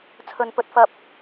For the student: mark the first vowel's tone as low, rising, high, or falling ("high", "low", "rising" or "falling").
low